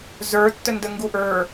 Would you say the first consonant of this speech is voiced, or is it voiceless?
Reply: voiced